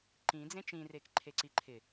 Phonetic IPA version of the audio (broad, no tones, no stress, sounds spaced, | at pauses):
ǃ ĩ d͡z ẽ t͡ʃ ĩ r e k ǃʰ e ǀ i ǃʰ ɪ